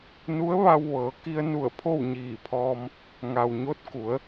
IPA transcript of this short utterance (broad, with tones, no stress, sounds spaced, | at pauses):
n u˧˥ ə̯ ʋ a˧ w ʋ ɤː˩˧ k i˧ ə̯ n u˧˩ ə̯ pʰ o˥˨ w ɲ iː˧˩ pʰ ɔː˧ m | ŋ a˩ w ɲ o˧˥ t̚ k u˩˧ ə̯